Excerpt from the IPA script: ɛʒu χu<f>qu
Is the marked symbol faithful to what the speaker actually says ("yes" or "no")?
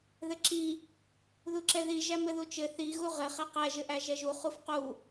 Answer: yes